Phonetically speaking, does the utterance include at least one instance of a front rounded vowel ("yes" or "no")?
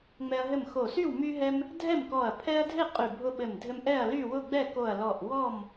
yes